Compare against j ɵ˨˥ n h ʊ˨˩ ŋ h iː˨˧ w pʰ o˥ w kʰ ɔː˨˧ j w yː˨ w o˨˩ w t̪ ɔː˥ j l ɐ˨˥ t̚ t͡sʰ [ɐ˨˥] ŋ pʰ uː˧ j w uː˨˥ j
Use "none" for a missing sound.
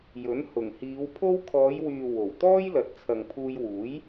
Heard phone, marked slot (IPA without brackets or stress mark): ɐ˨